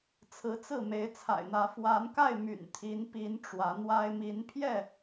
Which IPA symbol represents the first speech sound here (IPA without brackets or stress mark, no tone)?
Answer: t͡sʰ